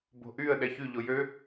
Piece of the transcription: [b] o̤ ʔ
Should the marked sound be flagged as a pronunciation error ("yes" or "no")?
no